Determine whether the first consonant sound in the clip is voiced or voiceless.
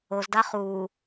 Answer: voiced